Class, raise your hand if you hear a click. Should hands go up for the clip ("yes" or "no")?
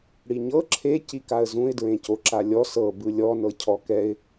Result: yes